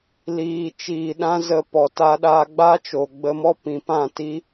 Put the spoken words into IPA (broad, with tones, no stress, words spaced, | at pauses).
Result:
liː˨t͡ʃiː˨ɗã˧ zə˨ pɔ˨ta˧ɗaː˧ ɡ͡ba˦t͡ʃo˨ɡ͡bə˧mɔ˦ pĩ˨pã˦˨ti˦